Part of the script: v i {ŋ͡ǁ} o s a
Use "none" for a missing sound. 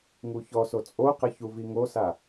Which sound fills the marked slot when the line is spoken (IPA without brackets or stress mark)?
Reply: ŋ